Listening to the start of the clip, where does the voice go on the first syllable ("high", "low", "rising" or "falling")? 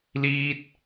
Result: high